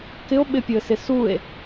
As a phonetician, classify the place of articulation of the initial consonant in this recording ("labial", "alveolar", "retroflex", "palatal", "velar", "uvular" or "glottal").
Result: velar